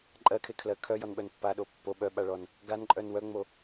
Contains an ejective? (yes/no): yes